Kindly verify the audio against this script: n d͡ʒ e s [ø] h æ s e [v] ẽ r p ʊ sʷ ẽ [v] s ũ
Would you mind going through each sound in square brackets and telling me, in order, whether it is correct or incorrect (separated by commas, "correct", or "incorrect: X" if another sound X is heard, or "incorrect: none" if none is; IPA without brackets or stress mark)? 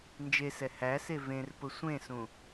incorrect: ɛ, correct, incorrect: none